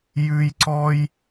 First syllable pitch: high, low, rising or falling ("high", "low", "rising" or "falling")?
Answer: high